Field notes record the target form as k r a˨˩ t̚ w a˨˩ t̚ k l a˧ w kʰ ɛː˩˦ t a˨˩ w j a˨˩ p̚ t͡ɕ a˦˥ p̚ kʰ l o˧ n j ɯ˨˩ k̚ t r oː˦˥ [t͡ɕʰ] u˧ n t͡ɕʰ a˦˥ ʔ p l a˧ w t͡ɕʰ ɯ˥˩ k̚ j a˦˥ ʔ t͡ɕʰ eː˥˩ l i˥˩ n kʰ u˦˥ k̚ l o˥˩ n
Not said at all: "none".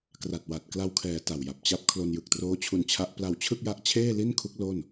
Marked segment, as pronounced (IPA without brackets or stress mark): t͡ɕʰ